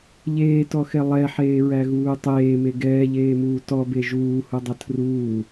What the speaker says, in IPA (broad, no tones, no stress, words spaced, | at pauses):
ʎeːtɔxɛ lˠɛħeːɹæɣuː tˤeːme ɡɛːʎeːmuː tɔbe ʒuːhudˤɐ tʰruː